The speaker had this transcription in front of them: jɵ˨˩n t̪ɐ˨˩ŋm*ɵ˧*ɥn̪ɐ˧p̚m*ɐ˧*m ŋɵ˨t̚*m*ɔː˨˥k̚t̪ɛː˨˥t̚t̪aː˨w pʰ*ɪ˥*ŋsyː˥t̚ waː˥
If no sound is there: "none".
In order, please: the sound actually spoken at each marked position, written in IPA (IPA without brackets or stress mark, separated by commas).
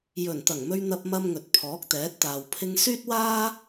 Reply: ɵ˧, ɐ˧, pʰ, ɪ˧